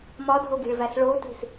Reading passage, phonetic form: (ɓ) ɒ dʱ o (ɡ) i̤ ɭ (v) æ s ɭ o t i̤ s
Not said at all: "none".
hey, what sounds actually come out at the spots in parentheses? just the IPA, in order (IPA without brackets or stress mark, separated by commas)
m, ɡ, v